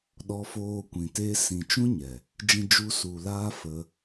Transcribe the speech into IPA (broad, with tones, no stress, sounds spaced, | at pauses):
ɗ ɔ˧ f oː˧ kʷ ĩ˨ t e˦ s ĩ˨ t͡ʃ ũ˦ ɲ ɛ˨ | d͡ʒ ĩ˧ d͡ʒ u˧ s u˨ l aː˦ f ə˧